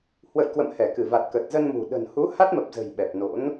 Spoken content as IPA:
h w ə̰˧˨ j k w ə̰˧˨ m h ɛ˧˩ k ɨ˧˩ v a˨˩ t̚ k ə˨˩ t̚ z ə˧ n m ṳ˨˩ ɗ ə̤˨˩ n h u˨˦ h a˦˥ t̚ m ə˨˩ p̚ z ə̤˨˩ j ɓ ɛ˨˩ p̚ n o̰˧˥ n

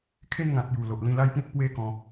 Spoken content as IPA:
kʰ e˥˧ n ŋ ã˨ t̚ j u˨˩ l o˨ ʔ l ĩ˧ l a˦ j p ĩ˦ t̚ p w e˧ k ɔ̃˧

